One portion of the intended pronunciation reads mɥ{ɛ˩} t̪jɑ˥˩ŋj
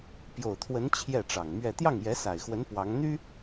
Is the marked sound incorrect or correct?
incorrect